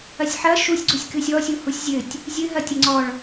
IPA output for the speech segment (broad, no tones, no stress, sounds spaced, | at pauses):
ɐ sʲ ħ ɐ ʃ u sʲ ɡ͡ǀ u sʲ k ɨ sʲ ɔ sʲ u h u sʲ zʲ ɘ tʲ | zʲ ɨ ɦ ɐ tʲ ɐ ŋ͡ǀ ɔ ɭ